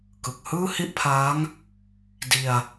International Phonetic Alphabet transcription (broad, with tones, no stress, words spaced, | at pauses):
kɯ˨˩k̚hɯː˥˩hi˥˩ʔpʰaː˦˥ŋ | di˧a̯